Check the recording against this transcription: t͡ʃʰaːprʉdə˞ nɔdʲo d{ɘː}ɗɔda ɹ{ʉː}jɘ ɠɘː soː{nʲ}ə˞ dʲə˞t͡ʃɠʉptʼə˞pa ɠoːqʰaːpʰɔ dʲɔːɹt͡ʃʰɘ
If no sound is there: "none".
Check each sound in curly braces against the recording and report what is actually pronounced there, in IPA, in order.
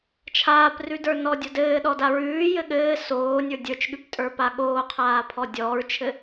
ɘː, ʉː, nʲ

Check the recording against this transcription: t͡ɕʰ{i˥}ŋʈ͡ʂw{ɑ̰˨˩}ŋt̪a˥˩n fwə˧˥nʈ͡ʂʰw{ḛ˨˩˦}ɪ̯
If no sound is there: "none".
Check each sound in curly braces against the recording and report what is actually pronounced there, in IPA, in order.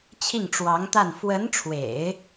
i˥˩, ɑ˧˥, ḛ˨˩˦

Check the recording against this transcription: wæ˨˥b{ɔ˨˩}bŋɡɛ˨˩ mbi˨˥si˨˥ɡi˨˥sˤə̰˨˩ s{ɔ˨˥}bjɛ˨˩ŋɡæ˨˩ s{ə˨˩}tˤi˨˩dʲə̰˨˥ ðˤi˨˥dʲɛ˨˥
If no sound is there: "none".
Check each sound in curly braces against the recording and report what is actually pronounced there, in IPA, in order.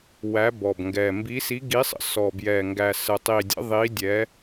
ɔ˨˩, ɔ˨˩, ə˨˩

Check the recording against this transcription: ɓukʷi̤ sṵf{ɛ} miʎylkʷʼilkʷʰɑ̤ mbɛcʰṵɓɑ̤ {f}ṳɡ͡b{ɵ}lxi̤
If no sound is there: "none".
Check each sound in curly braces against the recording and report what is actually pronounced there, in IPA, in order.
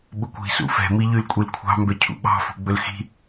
ɛ̤, f, ɵ

